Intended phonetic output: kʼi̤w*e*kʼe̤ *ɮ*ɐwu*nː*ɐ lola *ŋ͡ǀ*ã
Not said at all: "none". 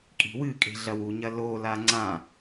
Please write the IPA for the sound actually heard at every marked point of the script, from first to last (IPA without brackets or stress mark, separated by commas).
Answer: ɨ, ɮ, ɲ, ŋ͡ǀ